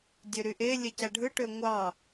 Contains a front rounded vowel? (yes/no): yes